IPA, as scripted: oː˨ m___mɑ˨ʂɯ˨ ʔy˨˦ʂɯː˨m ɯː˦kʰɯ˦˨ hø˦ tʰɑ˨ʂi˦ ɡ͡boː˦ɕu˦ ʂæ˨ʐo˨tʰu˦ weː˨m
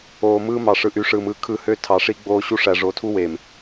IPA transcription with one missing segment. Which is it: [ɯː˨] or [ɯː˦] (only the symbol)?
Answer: ɯː˦